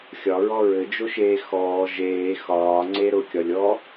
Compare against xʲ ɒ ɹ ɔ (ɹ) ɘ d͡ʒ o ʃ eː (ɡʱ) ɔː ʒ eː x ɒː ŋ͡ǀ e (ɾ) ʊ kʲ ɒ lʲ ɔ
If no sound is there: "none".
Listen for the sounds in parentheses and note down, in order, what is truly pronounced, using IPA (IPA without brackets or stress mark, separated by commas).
ɹ, x, ɾ